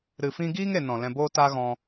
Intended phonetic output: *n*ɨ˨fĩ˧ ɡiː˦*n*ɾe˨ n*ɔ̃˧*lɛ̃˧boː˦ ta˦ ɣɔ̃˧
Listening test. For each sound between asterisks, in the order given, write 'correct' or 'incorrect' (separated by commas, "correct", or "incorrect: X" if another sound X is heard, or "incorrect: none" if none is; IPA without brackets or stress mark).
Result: incorrect: ɾ, incorrect: ŋ, incorrect: ɔ̃˨